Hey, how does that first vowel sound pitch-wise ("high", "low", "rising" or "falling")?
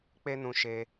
high